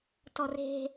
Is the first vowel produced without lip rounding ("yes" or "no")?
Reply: no